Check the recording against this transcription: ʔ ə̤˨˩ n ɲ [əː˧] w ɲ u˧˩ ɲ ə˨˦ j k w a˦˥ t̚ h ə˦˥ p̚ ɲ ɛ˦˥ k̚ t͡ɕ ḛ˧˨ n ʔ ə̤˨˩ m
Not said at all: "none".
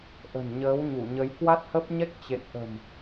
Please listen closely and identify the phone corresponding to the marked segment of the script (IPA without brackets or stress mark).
əː˨˦